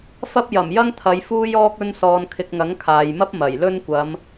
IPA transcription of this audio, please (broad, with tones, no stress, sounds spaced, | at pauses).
f ɐ˥ p̚ j ɐ˨˩ m j ɐ˥ ŋ t̪ʰ ɐ˨˧ j f uː˥ j ɔː˥ k̚ ɵ˧ n s ɔː˨ n kʰ ɪ˨ k̚ ŋ ɐ˨˥ ŋ kʰ aː˨ j m ɐ˥ p̚ m ɐ˨˩ j l ɵ˥ n kʷ ɐ˨˧ m